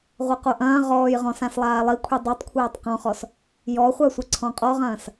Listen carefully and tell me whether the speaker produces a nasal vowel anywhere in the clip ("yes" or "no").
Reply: yes